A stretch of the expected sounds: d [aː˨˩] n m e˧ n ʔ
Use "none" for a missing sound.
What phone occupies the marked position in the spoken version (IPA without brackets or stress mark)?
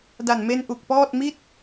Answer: a˨˩